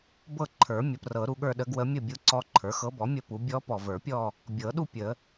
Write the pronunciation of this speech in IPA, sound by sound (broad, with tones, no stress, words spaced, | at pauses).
bɤ˥˧ǃʰə˞˨˩˦ mʲə˩˥prɤ˨˩˦ɾu˨ɠə˞˥˧ ɗə˧˥ɡwə˧˥ mʲə˥˧bʲu˧˥ǀɔ˧˥ ǃʰə˞˩˥xɤ˧˥bɔ˩˥ mʲə˥˧pu˩˥ bʲɔ˧˥ pɔ˨və˞˨˩˦pʲɔ˥˧ | bʲɤ˨˩˦ɗu˥˧ pʲə˨˩˦